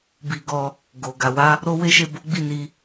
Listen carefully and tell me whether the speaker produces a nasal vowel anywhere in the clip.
no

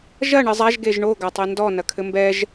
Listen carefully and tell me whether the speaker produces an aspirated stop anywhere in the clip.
yes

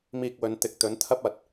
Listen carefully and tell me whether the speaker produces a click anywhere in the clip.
no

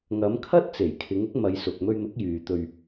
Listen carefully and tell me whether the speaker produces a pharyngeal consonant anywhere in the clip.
no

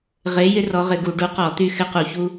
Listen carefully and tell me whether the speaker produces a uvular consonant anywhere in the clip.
yes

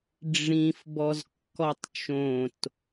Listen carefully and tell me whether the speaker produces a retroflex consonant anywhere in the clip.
yes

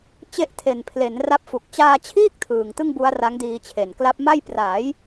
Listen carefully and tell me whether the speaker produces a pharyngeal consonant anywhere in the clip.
no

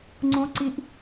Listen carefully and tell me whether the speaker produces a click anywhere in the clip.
yes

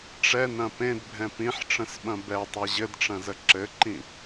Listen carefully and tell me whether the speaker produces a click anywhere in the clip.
yes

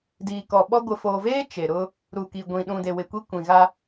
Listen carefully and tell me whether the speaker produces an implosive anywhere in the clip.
yes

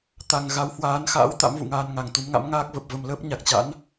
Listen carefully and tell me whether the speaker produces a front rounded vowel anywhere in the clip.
no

